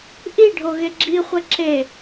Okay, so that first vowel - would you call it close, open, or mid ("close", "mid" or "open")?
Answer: close